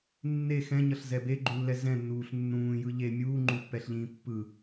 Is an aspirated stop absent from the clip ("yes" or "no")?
yes